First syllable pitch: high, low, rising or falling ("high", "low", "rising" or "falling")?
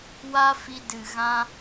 high